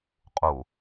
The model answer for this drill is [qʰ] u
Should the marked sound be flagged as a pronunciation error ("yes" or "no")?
yes